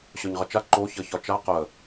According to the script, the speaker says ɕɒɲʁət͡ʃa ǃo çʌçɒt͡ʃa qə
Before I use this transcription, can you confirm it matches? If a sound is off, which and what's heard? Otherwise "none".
none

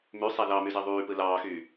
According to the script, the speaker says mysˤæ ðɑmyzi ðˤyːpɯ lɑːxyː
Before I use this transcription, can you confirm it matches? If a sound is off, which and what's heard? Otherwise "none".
none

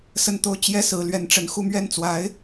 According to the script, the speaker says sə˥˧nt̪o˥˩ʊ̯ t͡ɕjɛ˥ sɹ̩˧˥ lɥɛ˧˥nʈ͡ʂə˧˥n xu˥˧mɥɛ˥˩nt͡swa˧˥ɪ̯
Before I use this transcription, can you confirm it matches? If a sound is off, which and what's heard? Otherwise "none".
none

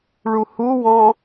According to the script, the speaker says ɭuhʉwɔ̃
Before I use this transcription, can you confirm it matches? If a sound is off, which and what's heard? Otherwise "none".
ʉ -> u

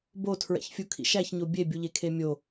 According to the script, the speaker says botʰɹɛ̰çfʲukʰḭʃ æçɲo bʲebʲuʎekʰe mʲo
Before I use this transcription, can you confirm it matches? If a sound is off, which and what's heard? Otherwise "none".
none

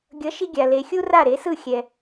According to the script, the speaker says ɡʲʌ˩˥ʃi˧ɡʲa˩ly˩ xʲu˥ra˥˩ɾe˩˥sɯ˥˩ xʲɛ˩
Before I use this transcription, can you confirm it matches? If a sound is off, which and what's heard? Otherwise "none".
y˩ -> e˩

